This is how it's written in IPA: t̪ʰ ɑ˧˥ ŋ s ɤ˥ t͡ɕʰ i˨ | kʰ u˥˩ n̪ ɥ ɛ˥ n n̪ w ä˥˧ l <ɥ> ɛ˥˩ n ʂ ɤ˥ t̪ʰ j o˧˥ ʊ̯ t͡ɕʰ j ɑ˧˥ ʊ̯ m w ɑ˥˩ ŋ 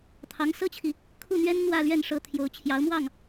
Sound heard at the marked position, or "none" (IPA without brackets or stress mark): ɥ